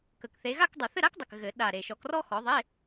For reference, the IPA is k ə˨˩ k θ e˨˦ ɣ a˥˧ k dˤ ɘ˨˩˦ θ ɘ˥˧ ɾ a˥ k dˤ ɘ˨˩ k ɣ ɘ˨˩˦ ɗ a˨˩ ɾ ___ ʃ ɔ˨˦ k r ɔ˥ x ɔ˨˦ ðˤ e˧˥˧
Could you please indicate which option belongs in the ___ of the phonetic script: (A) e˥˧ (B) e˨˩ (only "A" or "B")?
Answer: B